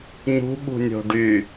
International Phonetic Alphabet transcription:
ɲ ṳ ɓ ṳ nʲ o̤ ɖ y

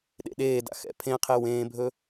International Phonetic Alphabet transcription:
ɗ ḛ ɗ eː d a̰ x ɛ̰ pʰ ẽ qʰ e w ẽː bʱ ɵ

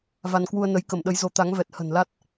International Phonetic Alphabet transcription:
v a˧ n k w u˧ ə̯ n ə˨˦ j k ə˧˩ m ɗ ə˨˦ j z o˨˦ t̪ a˨˦ ŋ v ɛ˨˩ t̚ h ə̤˨˩ n l a˦˥ t̚

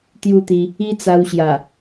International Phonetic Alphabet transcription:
t̪ j u˥˧ t̪ i˧ | i˦ t͡s a˧ w ɕ j a˨˩

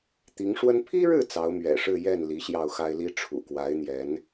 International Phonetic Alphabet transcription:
t̪ i˧˥ ŋ ʂ w ə˥ n pʰ i˥ ɻ ɻ̩˥˩ t͡s ɑ˧˥ ʊ̯ m ɥ ɛ̰˨˩ ʂ ɻ̩˥˧ j ɛ˥˩ n l i˧˥ ɕ j ɑ˥˩ ʊ̯ x a˥ ɪ̯ l i˥ ʈ͡ʂʰ ṵ˨˩ k w a˧˥ ɪ̯ n̪ j ɛ˧˥ n

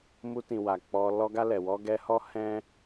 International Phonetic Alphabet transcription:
m u˧ t ĩ˨ w a˨ k͡p ɔ˧ l ɔ˧ ɡ a˧ l ɛ˨ w ɔ˧ ɡ ɛ˧ h ɔ˦ h ɛ̃˦

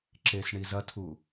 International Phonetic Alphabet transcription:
ǁ e s ɳ i z ɐ tʰ u

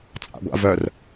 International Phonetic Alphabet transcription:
t͡sʼ a̰ ɡʷ a̰ v œ r

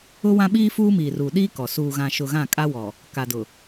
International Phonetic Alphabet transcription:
ʊ˦ w ã˦ ɓ iː˦ f uː˦ m iː˨ r u˨ ɗ i˦ k ɔ˨ s uː˨ ɣ ã˨ ʃ ʊ˨ ɣ ã˦˨ kʼ a˦ w ɔ˨ | k a˨ d ʊ˨

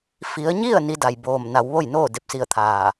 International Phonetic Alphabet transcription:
f i˩˧ ə̯ ɲ i˥˨ ə̯ n i˧˥ d a˧˩ j b oː˧˩ m n a˩˧ w ʋ o˥˨ j n oː˥˨ d e˥˨ p̚ s i˥˨ ə̯ t̪ʰ aː˧˩

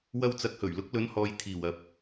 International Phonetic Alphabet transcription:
w ɐ˧ w t͡s ɐ˨˥ k̚ h ɵ˨˩ ɥ l ʊ˨˥ k̚ l ɵ˨˧ n h ɔː˨ j t̪ʰ iː˨˩ w ɐ˨ p̚

